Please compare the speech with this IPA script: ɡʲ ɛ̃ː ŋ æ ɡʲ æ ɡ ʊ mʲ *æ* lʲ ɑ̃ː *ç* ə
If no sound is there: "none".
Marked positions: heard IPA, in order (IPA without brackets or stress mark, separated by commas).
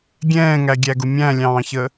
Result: æ̃, ç